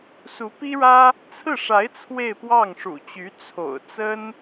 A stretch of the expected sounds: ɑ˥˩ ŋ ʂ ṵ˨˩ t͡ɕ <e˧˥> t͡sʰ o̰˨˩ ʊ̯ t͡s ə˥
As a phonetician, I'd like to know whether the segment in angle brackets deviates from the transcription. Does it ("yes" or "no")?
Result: yes